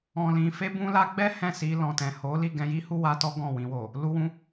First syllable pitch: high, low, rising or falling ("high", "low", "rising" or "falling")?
low